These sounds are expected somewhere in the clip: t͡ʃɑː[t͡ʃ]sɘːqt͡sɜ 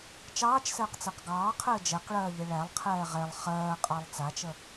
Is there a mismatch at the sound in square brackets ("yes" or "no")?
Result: no